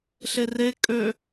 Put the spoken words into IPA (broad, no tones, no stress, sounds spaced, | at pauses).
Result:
ɬ e r e kʼ ø